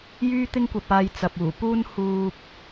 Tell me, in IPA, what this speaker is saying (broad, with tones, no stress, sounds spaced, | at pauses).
j yː˥ t̪ ɪ˥ ŋ kʷ ɐ˧ p̚ aː˧ j t͡s ɐ˨ p̚ uː˨˩ p uː˥ n h uː˧ p̚